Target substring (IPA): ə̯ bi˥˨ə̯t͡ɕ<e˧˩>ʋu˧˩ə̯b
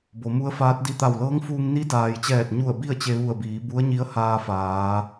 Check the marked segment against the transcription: incorrect: e˧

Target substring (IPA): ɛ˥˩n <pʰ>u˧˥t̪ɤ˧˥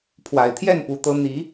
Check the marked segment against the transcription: incorrect: p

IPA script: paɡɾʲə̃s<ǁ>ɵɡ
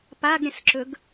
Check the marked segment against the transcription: correct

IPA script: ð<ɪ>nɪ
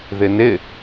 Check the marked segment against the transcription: correct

